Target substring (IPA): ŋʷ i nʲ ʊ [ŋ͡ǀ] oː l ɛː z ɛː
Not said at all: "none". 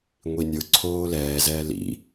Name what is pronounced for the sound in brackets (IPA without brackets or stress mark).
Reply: ǀʰ